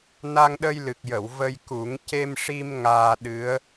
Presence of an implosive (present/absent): present